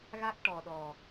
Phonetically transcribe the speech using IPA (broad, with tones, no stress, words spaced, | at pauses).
ɣa˦˥k̚ʈɔ˨˩ ɗɔ˨˩